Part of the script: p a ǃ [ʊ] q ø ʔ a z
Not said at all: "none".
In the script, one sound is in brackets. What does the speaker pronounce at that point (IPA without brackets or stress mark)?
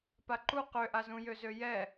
u